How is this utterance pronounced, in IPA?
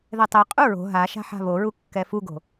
ðɛtˤɛqʼu ɹo̤ ɦa ʃa̤ħa̤βoɹu kːɛfuɡo̤

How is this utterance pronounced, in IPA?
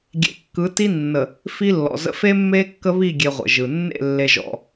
ɡʲḛ˨kːɯ˨˦ti˦nːə˨ | fi˦lːɔ̰˨zə̰˦ fe˦mːe˦ kːə˦βi˦˨ ɡʲe˦ʁʷə̰˨ʒɯ˨ nːḛ˦˨lːe˨ʒɔ̰˨

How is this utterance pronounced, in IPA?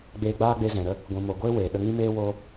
ɡ͡beː˧ɡ͡baː˦ɡ͡be˧ zɛ̃˨ɾə˦ | ɡʷĩ˨mo˨ɡʷeː˦ weː˨ɗə˧ŋĩ˦meː˦ woː˦

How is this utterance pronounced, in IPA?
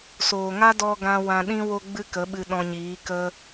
soː˨ŋa˦dɔ˧ɡã˧ wã˧ɗĩ˦ wo˦ɡ͡bɨ˦kə˨˦ɓɨ˧ ɗɔ̃˧ɲiː˨˦kə˦

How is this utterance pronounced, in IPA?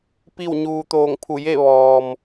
pi˥˨wɲuː˧ t̪oː˧˩ŋpʰu˧˩je˥˨ ʋɔː˩m

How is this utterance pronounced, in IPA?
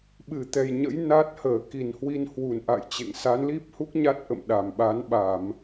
ɓɨ˧˩t̪ɛ˨˩jɲə̰˧˥j na˦˥t̚ həː˧˩ki˧˩nhwi˧nhwu˧˩n ʔa̰˧˨jt͡ɕḛ˧˨ŋsa˨˦n li˦˥p̚hu˦˥k̚ ɲa˦˥t̚ʔə̰˧˨m ɗa˨˩mɓa˨˦n ɓa˧˩˨m

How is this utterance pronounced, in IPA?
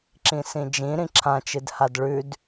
ǁĩsĩd͡ʒĩ ɾĩǁʰãt͡ʃɨdhad ɭʉd

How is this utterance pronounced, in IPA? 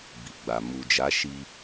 bi˨ɡ͡ba˨ mu˨d͡ʒa˨˦ʃi˧

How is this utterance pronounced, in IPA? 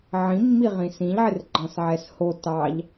ʕĩmːiʁĩ sĩʎʕɪr ɡ͡ǃɑ̃sʕɛsho tɑʎ

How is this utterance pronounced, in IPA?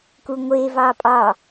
kuŋʷe vɑpʼɑ

